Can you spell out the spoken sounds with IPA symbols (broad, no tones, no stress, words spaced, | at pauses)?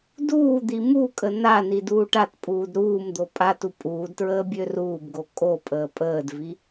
duː d̪imukʼə nani duːʈatpʼuːd ɾuːmd̪o pʼatu pʼuːdtɹəː bʲøruːbɡo kʼopʼəː pʼəːdvi